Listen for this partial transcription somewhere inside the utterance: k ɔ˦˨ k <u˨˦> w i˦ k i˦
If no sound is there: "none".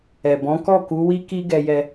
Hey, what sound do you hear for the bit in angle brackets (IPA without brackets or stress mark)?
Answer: u˨˦